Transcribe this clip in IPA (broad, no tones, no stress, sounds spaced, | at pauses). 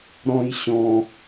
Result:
ɾ ɔ̃ j ɕ ɔ̃